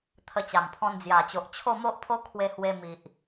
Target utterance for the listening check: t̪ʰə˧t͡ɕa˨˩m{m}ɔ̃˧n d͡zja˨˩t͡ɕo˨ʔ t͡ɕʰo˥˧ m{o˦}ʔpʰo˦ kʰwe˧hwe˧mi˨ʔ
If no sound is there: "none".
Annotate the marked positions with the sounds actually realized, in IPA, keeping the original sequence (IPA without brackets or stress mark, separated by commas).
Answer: pʰ, o˦